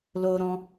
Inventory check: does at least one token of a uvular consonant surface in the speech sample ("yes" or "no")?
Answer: no